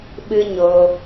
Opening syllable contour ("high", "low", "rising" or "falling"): high